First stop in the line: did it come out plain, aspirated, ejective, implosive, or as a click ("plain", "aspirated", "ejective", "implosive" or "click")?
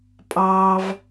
ejective